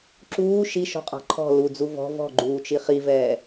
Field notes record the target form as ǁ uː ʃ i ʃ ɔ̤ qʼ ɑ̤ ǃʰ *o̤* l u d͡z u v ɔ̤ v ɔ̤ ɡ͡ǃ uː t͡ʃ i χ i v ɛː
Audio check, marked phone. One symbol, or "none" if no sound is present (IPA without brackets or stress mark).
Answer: ɔ̤